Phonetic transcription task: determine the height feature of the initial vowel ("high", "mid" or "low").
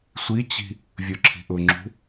high